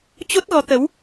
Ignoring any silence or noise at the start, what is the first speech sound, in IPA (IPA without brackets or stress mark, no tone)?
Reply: t͡ɕ